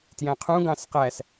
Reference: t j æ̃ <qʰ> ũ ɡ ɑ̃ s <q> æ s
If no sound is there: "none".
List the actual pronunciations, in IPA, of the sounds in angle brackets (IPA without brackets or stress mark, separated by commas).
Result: qʰ, q